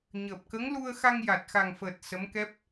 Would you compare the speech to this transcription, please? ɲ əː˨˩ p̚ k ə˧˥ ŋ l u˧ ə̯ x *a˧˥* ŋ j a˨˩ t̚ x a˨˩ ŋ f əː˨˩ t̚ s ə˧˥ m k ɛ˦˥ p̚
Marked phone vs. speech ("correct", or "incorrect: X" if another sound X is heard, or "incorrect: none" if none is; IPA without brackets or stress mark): incorrect: a˧